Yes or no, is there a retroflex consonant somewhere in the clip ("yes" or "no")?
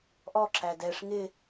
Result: yes